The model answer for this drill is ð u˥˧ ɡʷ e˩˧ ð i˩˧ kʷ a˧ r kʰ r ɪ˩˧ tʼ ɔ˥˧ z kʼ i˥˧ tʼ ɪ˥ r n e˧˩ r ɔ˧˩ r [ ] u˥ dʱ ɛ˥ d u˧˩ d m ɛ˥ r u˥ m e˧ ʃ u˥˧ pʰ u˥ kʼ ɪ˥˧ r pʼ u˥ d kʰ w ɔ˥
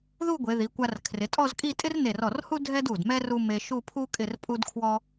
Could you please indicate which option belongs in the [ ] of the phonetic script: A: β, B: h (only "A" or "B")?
B